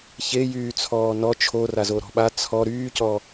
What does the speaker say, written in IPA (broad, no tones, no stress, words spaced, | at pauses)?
çejyːt͡sʰɔː nɔ t͡ʃʰora zoɾɔ̤ɓa t͡sʰɔ ɾyːcɔ